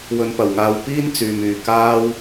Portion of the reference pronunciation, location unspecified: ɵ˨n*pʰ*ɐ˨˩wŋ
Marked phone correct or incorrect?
incorrect